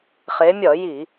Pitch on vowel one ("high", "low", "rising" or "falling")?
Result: rising